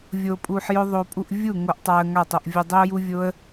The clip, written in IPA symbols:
vʲ o˧ pʼ u˧ ħ j ʊ˦ ðˤ o˧ pʼ u˧ ʔ vʲ u˦˨ ŋ o˧ ʔ tˤ a˧ ə̯ ŋ a˦˨ tˤ o˧ ʔ vʲ ʊ˧ dˤ ʏ˦ ʊ̯ j u˦ vʲ o˦ ə̯

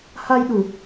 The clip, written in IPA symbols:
h a˧ j ɗ u˨˩

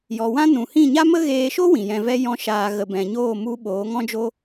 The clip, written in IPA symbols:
j ɔ˨ w ã˦ n ũ˨ h ĩ˦˨ ɲ a˦ m ə˦ ɣ eː˧ ʃ o˦ w ĩ˨ j ɛ̃˧ v ɛ˦ j ɔ̃˦ ʃ aː˧ ɣ ə˨ b ɛ̃˨ ɲ oː˦˨ m u˧ ɓ oː˨˦ ŋ ɔ̃˦ d͡ʒ o˦

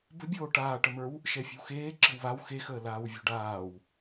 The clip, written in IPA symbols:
b ə̤ bʲ oː ʈ aː ʈ ə m ə˞ w | ʃ ɛ fʲ ə̤ w x eː ǁ ə̤ w β a w x e x əː l aː w vʲ o̤ ɖ aː w

